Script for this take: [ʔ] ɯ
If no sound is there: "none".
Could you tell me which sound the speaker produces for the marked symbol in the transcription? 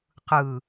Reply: q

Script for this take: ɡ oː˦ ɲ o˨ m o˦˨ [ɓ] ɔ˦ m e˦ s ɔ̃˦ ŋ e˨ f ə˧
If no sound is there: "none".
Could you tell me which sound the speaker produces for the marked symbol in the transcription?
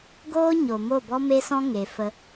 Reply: b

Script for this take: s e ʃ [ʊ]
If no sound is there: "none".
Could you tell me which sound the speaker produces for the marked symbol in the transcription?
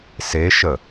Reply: ə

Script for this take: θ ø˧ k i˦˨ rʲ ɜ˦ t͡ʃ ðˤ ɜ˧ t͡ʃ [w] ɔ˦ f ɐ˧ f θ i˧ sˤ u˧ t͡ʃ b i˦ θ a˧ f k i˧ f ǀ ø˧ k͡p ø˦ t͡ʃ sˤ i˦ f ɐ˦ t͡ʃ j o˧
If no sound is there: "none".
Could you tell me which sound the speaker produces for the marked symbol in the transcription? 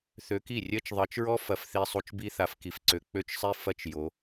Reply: ɹ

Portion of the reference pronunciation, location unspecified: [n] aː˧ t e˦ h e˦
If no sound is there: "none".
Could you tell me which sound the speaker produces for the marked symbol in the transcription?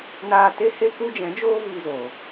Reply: n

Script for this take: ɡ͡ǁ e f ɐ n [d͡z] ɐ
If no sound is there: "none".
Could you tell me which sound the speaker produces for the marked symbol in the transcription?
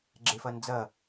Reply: d͡z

